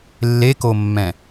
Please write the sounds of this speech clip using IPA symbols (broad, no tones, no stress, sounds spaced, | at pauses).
lː e k o mː ɛ̃